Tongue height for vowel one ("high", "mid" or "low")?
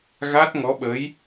low